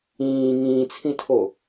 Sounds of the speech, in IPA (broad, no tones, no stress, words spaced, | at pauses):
ĩː ŋĩːt͡sʰĩtʰo